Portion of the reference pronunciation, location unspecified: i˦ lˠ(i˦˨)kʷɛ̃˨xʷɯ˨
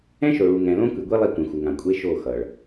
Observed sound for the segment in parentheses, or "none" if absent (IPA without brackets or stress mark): i˦˨